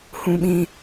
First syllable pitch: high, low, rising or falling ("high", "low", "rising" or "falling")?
high